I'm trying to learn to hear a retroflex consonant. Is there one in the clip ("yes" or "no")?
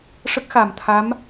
yes